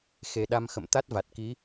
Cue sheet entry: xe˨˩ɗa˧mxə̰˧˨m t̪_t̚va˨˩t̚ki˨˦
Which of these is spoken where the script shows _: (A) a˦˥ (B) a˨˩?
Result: A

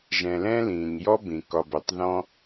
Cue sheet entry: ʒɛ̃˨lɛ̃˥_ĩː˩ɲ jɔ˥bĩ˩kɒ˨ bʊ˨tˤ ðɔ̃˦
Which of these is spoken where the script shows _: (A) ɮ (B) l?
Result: B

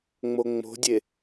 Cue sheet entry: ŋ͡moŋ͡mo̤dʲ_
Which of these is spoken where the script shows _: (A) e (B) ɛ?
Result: A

